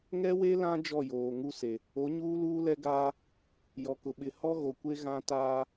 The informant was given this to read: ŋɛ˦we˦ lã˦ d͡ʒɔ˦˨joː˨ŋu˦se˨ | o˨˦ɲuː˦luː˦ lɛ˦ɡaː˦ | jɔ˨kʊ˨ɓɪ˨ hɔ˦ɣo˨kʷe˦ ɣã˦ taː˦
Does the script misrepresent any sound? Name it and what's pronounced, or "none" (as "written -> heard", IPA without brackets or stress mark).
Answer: none